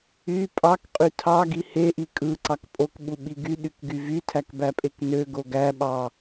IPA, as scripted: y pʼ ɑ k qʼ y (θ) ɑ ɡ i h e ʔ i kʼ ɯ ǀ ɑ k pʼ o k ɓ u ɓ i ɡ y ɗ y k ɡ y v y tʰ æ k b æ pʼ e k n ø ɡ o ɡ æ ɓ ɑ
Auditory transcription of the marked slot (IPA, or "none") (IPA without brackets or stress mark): tʰ